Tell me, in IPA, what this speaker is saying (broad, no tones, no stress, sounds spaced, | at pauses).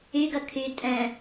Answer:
y ɡ ɐ kʰ y tʼ ɛ̃